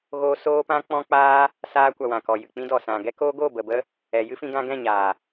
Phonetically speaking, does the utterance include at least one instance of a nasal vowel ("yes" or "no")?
yes